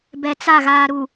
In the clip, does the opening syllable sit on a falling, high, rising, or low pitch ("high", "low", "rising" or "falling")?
low